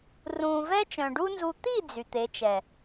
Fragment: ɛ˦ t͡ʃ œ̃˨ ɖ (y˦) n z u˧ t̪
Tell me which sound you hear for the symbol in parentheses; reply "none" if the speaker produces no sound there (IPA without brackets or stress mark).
u˦